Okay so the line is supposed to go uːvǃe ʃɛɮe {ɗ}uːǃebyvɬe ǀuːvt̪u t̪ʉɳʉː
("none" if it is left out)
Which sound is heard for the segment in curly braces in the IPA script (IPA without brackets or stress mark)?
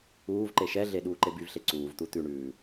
ɗ